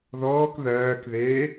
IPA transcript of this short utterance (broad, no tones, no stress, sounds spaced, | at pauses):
ð ɔː k ð ɜː k ð eː